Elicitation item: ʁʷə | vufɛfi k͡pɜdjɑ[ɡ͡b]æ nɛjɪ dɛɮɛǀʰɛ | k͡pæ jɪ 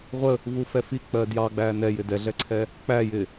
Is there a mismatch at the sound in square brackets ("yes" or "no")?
no